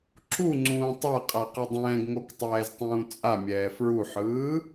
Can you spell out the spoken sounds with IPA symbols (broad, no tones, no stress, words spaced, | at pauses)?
ǁuŋ͡ǀũː tˤaqʼaqʌ dˤɛ̃ːɡŋoktˤɛːztˤũː t͡sʼamʲɛː fɹuħɯː